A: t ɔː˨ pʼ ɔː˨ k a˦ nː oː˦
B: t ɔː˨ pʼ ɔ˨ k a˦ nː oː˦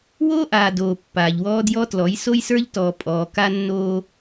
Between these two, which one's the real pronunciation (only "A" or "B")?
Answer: A